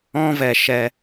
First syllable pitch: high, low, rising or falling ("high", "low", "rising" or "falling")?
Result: high